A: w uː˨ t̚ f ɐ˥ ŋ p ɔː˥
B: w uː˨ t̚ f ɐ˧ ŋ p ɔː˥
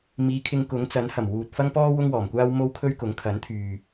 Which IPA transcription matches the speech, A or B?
A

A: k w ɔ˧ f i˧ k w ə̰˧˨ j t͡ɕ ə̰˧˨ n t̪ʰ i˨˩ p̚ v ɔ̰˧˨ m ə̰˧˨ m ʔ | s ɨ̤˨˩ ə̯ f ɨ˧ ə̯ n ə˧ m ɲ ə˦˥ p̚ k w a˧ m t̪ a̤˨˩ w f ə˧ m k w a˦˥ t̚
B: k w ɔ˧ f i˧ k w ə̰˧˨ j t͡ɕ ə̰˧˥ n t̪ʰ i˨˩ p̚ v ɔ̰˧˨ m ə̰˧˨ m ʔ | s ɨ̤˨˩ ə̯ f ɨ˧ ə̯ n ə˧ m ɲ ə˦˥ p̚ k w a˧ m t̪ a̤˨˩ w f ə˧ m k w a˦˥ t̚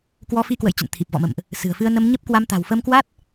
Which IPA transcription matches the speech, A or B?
A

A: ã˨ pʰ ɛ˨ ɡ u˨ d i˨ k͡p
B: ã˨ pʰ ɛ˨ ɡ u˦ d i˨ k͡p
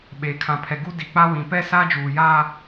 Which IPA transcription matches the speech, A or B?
B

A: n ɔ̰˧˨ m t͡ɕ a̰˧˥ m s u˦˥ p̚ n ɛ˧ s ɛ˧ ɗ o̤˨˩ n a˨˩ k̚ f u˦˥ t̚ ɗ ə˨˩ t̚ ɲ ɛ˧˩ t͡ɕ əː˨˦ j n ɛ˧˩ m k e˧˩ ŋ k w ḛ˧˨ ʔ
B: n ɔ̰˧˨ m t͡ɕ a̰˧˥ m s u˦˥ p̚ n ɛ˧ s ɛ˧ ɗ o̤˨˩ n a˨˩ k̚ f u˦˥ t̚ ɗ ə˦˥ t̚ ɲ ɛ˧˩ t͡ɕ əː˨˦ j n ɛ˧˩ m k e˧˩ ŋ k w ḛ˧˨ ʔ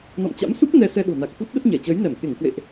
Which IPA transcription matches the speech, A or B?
B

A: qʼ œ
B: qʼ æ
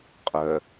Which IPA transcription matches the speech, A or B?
A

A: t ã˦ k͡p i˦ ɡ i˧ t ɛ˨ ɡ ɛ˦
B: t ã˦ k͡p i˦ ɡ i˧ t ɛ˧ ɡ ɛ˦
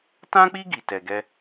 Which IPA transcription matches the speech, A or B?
B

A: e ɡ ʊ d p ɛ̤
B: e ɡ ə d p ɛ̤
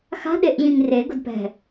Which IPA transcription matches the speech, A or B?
A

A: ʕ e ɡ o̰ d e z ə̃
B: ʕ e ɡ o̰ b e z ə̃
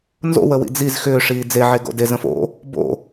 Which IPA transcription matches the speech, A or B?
A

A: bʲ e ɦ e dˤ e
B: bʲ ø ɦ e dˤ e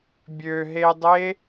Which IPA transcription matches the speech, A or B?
B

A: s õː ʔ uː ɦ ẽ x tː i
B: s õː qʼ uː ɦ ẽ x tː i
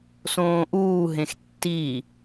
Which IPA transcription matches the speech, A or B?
A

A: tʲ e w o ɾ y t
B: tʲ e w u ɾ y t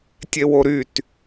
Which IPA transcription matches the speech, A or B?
A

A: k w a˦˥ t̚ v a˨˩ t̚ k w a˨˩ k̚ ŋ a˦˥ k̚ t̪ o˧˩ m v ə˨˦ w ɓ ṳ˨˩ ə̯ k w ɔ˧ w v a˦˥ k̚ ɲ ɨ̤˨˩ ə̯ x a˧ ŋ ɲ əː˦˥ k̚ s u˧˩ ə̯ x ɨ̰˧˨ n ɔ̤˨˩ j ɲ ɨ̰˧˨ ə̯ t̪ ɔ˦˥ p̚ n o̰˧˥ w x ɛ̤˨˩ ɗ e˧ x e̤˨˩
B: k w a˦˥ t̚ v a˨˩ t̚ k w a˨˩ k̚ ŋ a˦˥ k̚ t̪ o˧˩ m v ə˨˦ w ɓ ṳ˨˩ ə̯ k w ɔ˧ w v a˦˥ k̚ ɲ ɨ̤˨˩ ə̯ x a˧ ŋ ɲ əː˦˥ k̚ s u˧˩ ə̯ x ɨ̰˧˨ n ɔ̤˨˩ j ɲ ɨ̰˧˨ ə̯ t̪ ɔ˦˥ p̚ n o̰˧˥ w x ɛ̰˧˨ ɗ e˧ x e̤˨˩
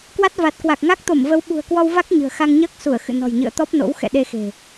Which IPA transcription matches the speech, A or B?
B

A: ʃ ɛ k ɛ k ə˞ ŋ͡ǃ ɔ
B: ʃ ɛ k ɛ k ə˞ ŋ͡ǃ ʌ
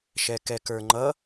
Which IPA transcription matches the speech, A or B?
B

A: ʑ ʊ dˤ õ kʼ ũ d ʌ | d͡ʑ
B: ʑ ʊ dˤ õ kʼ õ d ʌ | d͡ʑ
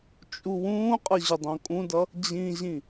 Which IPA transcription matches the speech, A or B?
A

